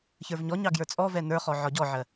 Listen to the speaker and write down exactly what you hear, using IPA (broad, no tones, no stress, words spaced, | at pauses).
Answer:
çə˞vɲɔɲɑ ɡjə˞t͡sʼɔvɛ nə˞χɔ ʕɒɟɔʕɜ